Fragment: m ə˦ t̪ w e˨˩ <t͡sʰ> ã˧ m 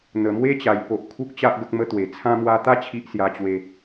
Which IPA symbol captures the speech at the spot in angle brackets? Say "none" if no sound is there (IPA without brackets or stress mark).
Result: t͡sʰ